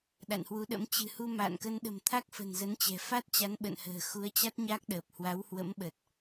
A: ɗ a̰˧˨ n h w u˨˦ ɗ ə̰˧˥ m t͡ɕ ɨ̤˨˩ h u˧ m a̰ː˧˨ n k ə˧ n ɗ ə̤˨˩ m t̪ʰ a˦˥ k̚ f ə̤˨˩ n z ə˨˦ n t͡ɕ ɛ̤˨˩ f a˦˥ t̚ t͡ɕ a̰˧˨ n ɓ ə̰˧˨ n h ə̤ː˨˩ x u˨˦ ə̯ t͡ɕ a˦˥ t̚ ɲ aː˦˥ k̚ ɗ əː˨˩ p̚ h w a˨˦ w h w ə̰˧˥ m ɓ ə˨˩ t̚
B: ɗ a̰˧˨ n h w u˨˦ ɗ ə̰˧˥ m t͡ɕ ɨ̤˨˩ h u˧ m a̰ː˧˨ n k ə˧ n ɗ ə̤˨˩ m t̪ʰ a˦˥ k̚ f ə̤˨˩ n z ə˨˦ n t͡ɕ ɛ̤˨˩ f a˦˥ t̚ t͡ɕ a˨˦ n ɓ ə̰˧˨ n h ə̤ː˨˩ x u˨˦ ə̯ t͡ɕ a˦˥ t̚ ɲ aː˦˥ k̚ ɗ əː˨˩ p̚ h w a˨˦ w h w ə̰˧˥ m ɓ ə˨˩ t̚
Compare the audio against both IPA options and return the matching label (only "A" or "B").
B